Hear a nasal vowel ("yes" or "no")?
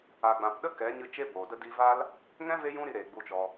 yes